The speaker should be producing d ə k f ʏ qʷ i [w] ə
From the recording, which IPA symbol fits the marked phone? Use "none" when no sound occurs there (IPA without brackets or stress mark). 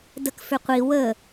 w